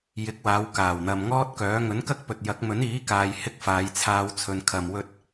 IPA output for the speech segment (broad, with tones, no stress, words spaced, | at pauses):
jɪ˨˥k̚waː˨˧w kaː˨˩wn̪ɐ˨mŋɔː˥t̚kœː˨˥ ŋɵ˨˥nkɐ˥k̚pɵ˨t̚jɐ˨˥k̚ mɵ˨˥niː˨˥kaː˨j hɪ˥k̚faː˨˧jt͡sʰaː˧wt͡sʰɵ˨n kʰɐ˨m wɵ˧t̚